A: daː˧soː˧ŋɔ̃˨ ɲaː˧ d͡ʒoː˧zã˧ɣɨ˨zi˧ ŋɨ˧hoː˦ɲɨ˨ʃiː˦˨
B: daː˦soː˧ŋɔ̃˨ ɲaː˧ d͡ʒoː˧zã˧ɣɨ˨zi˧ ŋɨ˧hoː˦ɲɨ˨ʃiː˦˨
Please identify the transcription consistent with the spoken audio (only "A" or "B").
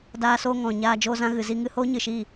A